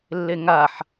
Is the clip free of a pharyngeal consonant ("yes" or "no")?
no